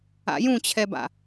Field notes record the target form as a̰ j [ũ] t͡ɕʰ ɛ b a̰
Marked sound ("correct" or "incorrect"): correct